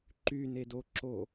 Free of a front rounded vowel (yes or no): no